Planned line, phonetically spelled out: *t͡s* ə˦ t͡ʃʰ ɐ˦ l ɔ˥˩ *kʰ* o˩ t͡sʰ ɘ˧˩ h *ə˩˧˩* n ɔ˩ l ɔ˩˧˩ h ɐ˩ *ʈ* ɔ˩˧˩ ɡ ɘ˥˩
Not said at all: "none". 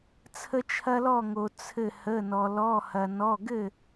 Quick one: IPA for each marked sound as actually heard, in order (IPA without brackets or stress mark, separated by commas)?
t͡sʰ, ŋ, ə˩˧˩, n